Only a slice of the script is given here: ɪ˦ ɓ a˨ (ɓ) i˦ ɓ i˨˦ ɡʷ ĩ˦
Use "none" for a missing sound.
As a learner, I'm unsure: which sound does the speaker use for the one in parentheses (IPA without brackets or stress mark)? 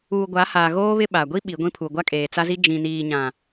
ɡʷ